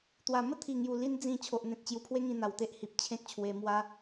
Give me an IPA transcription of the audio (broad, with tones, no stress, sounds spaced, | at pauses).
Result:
t̪ w a˨˩ m ə˥˧ t̪ʰ i˨˩ ŋ j u˨˩ l i˧ n d͡z ĩ˨˩ t͡ɕʰ o˨ ʔ n̪ ẽ˨ t̚ t͡ɕ j u˨˩ pʰ w e˦ ŋ ĩ˧ n̪ a˨˩ w t̪ e˦ ʔ h i˨ p̚ t͡ɕʰ ẽ˦ k̚ t͡ɕʰ w e˧ m w a˦